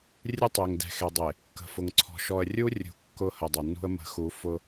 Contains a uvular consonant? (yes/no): no